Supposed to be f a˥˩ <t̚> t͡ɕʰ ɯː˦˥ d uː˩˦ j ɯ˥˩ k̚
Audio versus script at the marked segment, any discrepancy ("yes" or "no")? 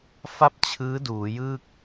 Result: yes